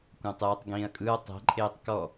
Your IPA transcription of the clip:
kʷãtˤɯːtˤɡĩːɐ̯kʼɯɐ̯ tˤɛ̤ ǃʼeːtˤkɔ

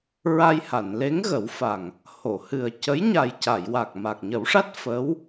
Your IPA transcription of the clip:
ɹa˧jha˨˩˨nle˧˥ŋɣə˨˩˦w fa˨˩ŋ | ho˨˩˨hɨ˨˩ə̯cə˧˥j ɲa˨˩jca˨˩˨jwa˨˩k̚ ma˨˩k̚ɲə˨˩˦wʂa˦˥t̚ fə˧˥w

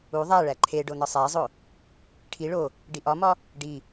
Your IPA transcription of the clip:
u ðˤæɭæ ǃʰe ɖonɒsˤæzˤo | ʈʰi ɭo | ɖiʔɒmɒ | ɖi

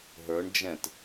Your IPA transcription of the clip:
ɦə˞ɳ d͡ʒɛ̃t

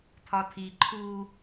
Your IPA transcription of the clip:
t̪ʰɒt̪ʰi ǃʰu

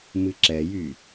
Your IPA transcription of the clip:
mɨǁɛjy

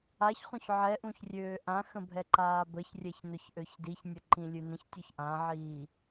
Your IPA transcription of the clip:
açχũç ʕɛʔũçrʲøː ʔãxə̃bʱɛǃaː bəçrʲɛçnʊçʔøç diçnʲəǃĩlʲɨ nə̃çtʲuç ʔãʕiː

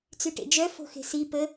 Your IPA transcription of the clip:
t͡syʈḛd͡ʒœ fo̤xe̤si pə

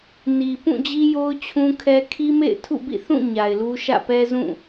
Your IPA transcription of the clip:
ni˨ pũ˦˨d͡ʑi˦jo˦ʊ̯ t͡ɕʰũ˦kʰɛ˦ kʰi˦mḛ˦˨ɪ̯ tʰṵ˦˨bḭ˦˨ θũ˦˨ ɲa˨ɪ̯lu˦ ʃä̰˦˨pɛ˦ zũ˦˨

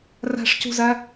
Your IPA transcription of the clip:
ræ̤ʂcṳzæ

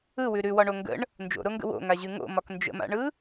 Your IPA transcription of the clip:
ɯwʉ ɾʉwɒɳo ŋɡə̰ɳ | nd͡ʒo̰ɾoŋɡə̰ wo̰ŋaʑʉ ŋo̰mɒk nd͡ʒə̰ma̰ɳɯ

